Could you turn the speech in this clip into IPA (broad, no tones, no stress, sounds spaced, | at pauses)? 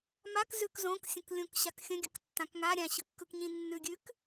m a k z ʉ k z õ k sʲ ə̃ k lʲ õ k ɕ a k xʲ ə̃ ɡʲ ə k tː ã k ŋ a ɾʲ ã ɕ ɯ kː ɯ k ɲ ĩ nː ʉ ɡʲ ʉ k